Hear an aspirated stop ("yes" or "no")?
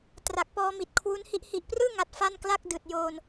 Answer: yes